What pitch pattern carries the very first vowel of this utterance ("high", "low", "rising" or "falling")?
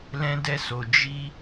high